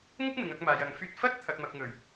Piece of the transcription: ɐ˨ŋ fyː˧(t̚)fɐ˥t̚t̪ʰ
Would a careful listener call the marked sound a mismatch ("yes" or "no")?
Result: no